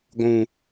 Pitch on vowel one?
high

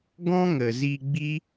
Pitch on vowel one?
high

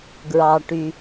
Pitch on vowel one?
high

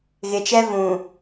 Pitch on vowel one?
low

